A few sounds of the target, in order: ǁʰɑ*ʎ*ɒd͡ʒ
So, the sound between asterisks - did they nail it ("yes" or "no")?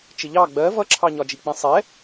no